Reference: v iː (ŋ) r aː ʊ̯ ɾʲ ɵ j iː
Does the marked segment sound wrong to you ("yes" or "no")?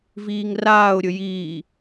no